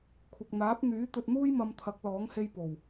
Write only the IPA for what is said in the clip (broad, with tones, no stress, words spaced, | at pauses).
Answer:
kʷʰɪ˨k̚n̪aː˨˥p̚n̪yː˨˥ t̪ɵ˧t̚n̪uː˥jmɐ˧m t̪ʰɐ˨˥k̚lɔː˨˥ŋhe˧j po˨˩w